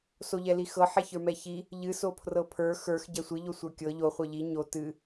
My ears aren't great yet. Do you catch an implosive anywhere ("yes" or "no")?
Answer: no